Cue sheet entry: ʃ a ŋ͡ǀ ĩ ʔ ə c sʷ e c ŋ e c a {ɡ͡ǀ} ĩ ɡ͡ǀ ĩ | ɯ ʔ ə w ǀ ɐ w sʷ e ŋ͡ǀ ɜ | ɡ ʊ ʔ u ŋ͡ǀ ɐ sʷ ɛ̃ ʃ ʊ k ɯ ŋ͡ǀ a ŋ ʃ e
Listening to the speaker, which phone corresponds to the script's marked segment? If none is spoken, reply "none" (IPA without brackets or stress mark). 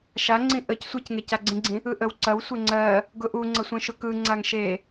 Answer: ɡ͡ǀ